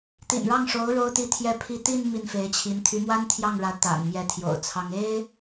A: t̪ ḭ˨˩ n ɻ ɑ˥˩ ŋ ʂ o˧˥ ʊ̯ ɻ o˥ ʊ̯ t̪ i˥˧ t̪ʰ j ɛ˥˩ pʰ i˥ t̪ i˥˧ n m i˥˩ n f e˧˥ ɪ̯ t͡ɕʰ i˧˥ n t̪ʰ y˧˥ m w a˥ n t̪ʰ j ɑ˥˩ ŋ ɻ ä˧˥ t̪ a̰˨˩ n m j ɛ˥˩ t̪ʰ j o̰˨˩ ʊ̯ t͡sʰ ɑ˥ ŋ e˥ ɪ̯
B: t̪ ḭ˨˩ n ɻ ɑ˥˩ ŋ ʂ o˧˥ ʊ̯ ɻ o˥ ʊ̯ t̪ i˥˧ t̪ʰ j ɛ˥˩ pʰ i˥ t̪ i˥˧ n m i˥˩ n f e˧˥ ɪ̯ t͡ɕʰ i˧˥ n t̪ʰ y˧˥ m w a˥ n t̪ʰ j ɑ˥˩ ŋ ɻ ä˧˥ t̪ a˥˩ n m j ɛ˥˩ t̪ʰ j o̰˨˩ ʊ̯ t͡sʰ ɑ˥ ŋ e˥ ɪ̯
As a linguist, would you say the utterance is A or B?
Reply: A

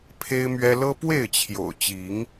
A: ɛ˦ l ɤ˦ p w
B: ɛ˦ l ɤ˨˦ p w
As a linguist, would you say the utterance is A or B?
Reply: A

